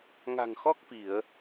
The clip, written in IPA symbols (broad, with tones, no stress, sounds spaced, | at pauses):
ŋ a̤˨˩ ŋ x ɔ˦˥ k̚ f i˧˩˨ ə̯